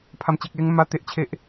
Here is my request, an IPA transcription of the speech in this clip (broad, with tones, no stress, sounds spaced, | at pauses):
pʰ a˨˩ m t͡ɕ e˨ k̚ l e˧ ŋ m a˧ t̪ e˨ ʔ t͡ɕʰ e˨ ʔ